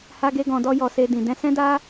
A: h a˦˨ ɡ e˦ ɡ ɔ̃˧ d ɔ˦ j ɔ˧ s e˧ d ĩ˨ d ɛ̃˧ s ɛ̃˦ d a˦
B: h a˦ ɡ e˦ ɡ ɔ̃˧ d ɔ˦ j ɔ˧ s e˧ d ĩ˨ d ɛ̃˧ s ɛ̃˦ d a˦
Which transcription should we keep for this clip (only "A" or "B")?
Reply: B